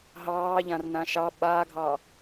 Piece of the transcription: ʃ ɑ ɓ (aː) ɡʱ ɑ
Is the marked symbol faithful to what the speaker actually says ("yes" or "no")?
yes